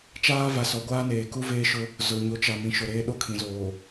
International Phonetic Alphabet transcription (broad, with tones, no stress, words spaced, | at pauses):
t͡ʃaː˦va˨ sɔ˨˦ɡʷaː˦neː˨ ku˦veː˦ʃʊ˦ | zʊ˨ ɲo˨˦t͡ʃa˨ mĩ˨ʃʊ˨ɾeː˦ ɗo˦kʰĩ˨zoː˨